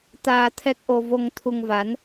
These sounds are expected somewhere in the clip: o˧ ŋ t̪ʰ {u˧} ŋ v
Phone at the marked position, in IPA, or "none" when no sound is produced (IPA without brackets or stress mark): u˧